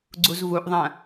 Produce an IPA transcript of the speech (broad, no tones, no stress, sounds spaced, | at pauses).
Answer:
ɡ͡ǀ u z v u ʔ ðˤ ɐ̃